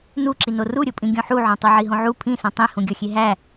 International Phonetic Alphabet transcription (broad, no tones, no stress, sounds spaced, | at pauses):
n u ǁ i n o r u ɾʲ o pʼ ĩ ɡʲ õ ħ u ʕ õ tˤ o ʕ i ɦ õ ʕ u pʰ ĩ s õ tˤ ĩ h ũ ɡʲ ɒ xʲ e ɦ æ